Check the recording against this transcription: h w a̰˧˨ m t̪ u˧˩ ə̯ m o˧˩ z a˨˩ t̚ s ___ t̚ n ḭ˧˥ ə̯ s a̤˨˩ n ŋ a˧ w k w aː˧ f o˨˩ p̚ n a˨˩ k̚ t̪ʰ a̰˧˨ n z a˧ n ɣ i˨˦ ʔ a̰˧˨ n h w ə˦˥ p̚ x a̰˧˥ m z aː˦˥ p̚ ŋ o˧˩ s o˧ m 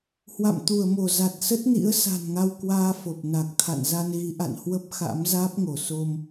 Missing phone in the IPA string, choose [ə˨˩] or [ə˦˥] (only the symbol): ə˦˥